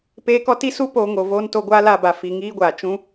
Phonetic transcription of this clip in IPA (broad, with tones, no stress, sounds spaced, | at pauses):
p eː˦ k ɔ˦ t i˦ s u˦ p oː˧ ŋ o˧ v oː˦ n t o˦ ɡʷ aː˦ l a˧ b a˧ f i˧ ŋ iː˦ ɡʷ aː˨ t͡ʃ ũ˦